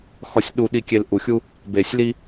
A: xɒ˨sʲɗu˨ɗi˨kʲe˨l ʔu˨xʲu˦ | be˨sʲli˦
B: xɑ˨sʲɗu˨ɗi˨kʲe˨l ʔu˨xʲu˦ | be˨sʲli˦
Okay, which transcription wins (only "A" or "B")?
A